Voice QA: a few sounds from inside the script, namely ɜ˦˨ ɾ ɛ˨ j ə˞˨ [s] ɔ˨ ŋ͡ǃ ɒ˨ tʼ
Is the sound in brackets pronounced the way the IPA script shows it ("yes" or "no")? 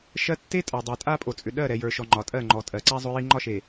no